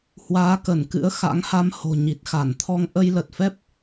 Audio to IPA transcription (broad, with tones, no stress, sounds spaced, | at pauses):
h w aː˨˦ k ə˧˩ n k ɨ̰˧˥ ə̯ x a̰˧˥ ŋ h a˧ m h o̤˨˩ ɲ i˨˩ t̚ x a˧˩ n t̪ʰ ɔ˧ ŋ ʔ ə˧ j l ə˨˩ t̚ f ɛ˦˥ p̚